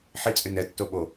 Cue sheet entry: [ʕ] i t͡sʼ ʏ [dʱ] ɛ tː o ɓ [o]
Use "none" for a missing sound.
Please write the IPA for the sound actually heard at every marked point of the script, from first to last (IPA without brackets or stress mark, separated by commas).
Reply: ħ, n, o